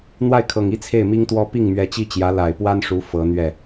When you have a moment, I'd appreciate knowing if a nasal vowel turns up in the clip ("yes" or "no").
no